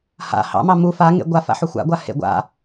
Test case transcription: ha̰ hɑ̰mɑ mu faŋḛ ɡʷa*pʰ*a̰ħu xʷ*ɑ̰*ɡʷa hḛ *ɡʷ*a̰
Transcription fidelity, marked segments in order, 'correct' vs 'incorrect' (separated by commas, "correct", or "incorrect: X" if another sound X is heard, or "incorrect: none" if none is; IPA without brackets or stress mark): incorrect: f, incorrect: a̰, correct